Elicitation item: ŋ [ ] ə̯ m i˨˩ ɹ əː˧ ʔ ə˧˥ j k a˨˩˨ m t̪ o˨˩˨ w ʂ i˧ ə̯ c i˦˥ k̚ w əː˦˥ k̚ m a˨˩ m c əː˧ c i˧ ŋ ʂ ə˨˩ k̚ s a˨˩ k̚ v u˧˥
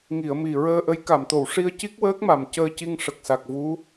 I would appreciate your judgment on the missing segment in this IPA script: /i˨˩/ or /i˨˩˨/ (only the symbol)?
i˨˩˨